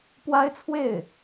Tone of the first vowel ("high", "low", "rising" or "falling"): high